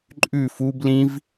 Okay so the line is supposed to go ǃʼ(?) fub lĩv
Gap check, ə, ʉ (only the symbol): ʉ